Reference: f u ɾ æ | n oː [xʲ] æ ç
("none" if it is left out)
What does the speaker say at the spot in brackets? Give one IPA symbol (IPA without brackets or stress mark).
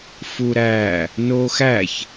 x